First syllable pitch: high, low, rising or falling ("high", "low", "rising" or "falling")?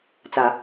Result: low